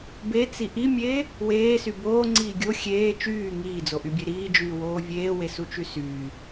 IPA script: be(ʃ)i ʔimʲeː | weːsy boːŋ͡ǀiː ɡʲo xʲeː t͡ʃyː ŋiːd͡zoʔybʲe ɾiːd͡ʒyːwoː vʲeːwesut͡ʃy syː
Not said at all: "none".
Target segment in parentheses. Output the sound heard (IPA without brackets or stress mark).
t͡s